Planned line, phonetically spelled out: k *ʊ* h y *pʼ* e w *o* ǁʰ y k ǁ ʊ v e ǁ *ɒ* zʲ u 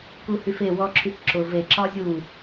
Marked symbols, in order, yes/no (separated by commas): no, no, no, yes